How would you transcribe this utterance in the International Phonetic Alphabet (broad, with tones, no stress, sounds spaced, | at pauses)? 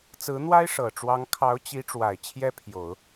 t͡s ɹ̩˧˥ n̪ w a˥ ɪ̯ ʂ ɤ˨˩ ʈ͡ʂ w ɑ˧˥ ŋ kʰ ɑ˧˥ ʊ̯ t͡ɕ i˧˥ ʈ͡ʂ w a˨˩ ɪ̯ t͡ɕʰ j ɛ˥ pʰ j o˨˩˦ ʊ̯